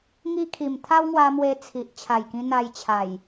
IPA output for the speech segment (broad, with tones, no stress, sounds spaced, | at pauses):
ŋ i˦ kʰ i˨˩ m t̪ʰ a˦ w ŋ w a˧ m w e˧ t͡sʰ i˨ ʔ t͡ɕʰ a˨˩ j k ĩ˧ n̪ a˧ j t͡ɕʰ a˨˩ j